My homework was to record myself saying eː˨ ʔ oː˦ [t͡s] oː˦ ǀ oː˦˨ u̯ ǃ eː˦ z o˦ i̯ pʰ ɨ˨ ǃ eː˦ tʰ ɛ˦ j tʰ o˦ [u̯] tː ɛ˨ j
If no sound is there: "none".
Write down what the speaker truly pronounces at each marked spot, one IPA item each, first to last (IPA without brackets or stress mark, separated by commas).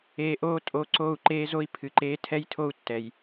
tʼ, u̯